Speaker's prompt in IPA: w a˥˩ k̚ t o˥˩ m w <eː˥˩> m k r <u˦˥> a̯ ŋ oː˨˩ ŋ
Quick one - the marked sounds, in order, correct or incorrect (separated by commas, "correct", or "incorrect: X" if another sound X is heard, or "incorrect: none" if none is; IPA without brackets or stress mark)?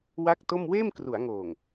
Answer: correct, incorrect: u˩˦